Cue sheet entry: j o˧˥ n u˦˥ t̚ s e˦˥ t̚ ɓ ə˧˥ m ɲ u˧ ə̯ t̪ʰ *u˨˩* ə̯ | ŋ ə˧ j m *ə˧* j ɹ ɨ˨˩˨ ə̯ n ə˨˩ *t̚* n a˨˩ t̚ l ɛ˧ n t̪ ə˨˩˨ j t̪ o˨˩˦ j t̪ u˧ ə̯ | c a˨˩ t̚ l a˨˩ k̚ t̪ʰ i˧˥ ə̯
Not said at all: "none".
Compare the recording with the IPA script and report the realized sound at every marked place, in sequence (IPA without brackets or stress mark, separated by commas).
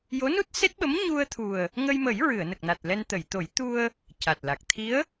u˨˩, ə˨˩˦, k̚